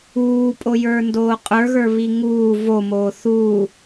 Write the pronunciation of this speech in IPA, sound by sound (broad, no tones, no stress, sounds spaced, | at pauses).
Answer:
uː pʼ o j ə˞ n d oː qʼ ə˞ ɣ ə˞ β i ŋ uː v o m oː θ u